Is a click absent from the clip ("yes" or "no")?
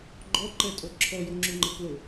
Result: no